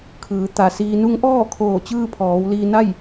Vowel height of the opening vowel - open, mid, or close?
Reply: close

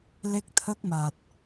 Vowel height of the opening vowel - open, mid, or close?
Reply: mid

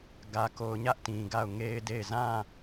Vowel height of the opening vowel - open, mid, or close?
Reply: open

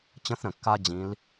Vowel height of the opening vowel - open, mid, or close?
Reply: mid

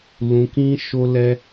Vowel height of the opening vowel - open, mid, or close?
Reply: close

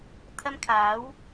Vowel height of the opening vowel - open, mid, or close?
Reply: open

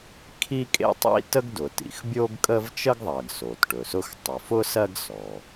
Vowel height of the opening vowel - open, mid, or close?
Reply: close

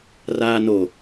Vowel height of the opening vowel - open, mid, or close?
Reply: open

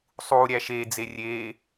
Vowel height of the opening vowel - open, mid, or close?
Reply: close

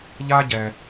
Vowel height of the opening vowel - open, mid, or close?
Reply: open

